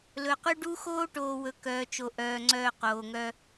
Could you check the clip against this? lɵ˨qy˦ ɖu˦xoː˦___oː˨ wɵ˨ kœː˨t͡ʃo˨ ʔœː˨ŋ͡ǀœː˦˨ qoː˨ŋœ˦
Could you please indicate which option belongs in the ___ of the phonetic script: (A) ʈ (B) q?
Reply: A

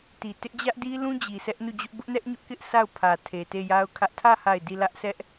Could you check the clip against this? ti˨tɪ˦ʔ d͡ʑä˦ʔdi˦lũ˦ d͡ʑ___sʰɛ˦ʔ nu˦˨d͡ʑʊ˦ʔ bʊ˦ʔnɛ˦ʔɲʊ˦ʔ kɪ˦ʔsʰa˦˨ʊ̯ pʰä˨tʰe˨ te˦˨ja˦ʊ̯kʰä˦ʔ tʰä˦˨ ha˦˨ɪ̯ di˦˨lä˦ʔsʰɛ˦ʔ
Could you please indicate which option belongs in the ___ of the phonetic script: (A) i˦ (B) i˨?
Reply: B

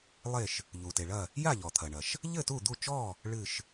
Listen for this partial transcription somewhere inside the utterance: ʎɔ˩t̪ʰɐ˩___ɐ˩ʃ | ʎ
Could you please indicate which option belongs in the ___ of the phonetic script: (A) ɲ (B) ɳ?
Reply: B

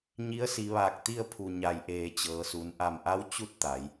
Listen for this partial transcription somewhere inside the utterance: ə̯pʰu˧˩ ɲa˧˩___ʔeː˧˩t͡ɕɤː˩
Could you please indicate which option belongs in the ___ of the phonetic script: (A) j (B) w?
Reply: A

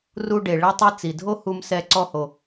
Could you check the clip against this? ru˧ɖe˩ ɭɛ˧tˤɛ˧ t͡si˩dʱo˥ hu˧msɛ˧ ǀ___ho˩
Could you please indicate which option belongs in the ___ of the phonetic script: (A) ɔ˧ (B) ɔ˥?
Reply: A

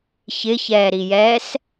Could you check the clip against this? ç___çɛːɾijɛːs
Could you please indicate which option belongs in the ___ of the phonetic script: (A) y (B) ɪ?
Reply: B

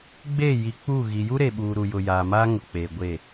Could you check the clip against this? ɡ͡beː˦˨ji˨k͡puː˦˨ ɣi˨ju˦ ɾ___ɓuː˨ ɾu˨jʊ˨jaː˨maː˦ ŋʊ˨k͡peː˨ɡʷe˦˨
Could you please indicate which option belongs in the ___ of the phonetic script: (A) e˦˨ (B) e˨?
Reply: B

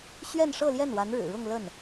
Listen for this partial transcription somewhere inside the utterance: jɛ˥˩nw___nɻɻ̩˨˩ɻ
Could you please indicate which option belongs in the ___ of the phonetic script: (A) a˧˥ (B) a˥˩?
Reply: A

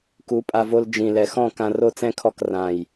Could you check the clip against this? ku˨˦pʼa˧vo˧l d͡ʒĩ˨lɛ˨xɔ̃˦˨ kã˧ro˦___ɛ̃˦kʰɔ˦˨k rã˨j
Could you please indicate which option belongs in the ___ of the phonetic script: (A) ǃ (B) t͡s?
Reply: B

